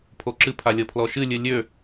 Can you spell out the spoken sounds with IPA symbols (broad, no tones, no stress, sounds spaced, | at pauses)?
pʰ o ǁ ɨ pʰ a lʲ ɤ pʰ l ɔ ʃ ɨ lʲ ɨ lʲ ø